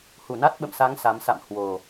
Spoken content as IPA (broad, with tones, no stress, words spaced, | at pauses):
hu˧˩na˦˥t̚ɓə̰˧˨msa˨˦ŋ sa˨˦m sa̰˧˨m hwo˨˩